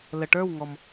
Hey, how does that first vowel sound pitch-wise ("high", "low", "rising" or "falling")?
low